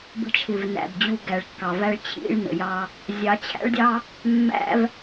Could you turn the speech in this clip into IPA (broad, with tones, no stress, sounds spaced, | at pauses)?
b ə̤˧ t͡ʃʰ ɪ˨ v n æ̰˨ b d͡ʑ u˧ ɡ æ˨ ɭ kː ɑ˨ v æ˦ ɭ t͡ɕʰ ḭ˦ ɭ n ə̰˨ j ɑ˦ | zʲ ɑ˨˦ t͡ɕʰ æ̰˦ ɭ dʲ ɑ˦ | mː æ̰˦ v